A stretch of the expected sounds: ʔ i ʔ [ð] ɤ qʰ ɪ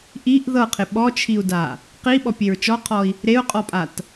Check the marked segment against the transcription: correct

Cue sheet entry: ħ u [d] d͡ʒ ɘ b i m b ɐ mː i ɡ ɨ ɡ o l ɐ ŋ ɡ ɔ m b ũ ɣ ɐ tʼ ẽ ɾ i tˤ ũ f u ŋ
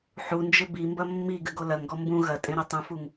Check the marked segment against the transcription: incorrect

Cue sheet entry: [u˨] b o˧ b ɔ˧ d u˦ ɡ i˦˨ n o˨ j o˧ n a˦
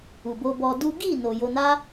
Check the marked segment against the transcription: correct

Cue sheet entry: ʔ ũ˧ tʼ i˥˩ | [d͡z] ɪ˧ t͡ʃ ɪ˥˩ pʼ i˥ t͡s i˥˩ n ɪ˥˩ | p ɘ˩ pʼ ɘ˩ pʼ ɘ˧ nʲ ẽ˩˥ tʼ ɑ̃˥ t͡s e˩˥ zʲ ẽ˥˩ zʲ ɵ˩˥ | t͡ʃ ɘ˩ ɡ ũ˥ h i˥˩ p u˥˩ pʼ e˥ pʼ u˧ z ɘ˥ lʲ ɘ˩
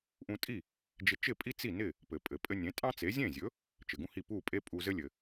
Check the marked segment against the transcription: incorrect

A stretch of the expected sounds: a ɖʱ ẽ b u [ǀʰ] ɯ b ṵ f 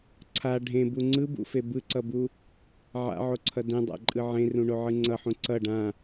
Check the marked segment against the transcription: incorrect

